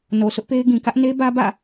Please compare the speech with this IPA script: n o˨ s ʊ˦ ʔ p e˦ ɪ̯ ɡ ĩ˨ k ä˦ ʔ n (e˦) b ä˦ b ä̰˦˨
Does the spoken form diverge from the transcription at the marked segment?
no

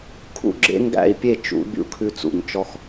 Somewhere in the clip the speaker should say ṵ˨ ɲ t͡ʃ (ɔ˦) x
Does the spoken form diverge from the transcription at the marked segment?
no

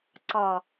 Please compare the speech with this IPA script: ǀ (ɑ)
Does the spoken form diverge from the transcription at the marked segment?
no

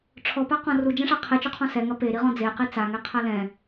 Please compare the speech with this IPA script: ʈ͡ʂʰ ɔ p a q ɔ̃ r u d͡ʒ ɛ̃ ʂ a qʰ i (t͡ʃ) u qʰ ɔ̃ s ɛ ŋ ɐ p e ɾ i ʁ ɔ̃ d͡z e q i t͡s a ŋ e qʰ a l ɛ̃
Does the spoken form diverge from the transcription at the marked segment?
no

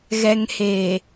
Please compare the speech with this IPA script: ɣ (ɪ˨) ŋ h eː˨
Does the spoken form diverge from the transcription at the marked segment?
yes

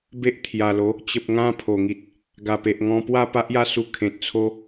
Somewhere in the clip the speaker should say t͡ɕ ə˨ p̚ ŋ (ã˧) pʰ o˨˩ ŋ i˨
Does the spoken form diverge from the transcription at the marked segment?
no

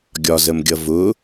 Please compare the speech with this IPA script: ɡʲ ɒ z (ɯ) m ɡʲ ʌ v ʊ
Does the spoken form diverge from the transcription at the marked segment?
yes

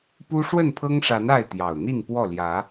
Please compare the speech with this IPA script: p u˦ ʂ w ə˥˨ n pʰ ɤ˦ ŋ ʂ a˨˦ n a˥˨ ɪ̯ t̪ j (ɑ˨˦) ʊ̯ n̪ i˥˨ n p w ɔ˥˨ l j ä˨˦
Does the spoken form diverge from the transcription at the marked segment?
yes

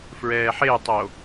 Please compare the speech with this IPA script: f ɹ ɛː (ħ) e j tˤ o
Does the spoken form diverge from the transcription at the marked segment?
no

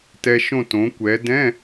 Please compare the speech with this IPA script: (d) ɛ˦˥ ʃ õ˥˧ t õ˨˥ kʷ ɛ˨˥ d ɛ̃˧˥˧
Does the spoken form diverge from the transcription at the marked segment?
yes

